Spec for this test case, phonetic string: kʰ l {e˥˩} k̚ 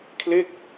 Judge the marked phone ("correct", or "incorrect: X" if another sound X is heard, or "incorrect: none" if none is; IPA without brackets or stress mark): correct